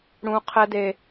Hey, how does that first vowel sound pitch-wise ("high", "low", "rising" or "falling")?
high